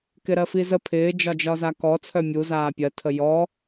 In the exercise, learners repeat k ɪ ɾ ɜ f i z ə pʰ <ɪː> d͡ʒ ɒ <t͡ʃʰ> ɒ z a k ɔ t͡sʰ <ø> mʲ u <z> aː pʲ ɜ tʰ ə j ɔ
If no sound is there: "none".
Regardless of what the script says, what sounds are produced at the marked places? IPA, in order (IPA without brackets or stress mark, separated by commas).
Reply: ɪː, d͡ʒ, œ, z